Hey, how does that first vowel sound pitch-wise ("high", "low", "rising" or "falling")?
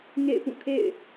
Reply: falling